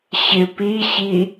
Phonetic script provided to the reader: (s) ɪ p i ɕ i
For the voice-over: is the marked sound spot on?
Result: no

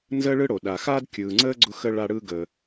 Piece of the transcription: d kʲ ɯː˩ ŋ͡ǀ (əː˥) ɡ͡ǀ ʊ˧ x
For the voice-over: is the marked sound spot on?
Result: yes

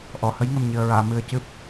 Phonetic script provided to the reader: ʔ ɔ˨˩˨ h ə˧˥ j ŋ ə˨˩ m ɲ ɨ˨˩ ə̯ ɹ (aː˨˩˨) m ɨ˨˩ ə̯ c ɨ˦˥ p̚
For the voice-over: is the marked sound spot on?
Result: yes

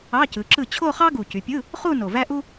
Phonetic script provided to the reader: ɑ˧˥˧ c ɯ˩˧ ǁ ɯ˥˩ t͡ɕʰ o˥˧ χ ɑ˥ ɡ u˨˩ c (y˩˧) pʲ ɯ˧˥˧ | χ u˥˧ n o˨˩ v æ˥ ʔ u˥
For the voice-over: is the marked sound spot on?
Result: yes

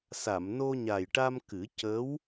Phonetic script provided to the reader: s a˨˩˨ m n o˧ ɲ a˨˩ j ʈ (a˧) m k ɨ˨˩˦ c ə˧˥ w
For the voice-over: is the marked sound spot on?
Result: yes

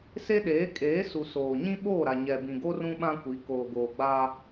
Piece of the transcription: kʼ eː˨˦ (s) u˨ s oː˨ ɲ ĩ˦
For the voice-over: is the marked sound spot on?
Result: yes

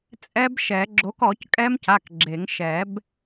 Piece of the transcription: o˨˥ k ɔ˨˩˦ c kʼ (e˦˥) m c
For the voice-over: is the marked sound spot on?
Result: no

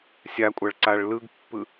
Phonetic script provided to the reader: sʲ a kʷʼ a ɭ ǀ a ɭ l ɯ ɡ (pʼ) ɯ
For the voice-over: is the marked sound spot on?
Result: no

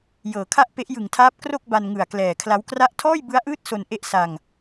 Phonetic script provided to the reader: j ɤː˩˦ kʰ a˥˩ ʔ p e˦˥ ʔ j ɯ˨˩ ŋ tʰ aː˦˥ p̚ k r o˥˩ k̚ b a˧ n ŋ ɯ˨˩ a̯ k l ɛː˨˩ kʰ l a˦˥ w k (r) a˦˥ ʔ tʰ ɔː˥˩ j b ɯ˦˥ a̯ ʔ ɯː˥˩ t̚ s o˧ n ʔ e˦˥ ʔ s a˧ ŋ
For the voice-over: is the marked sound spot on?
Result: yes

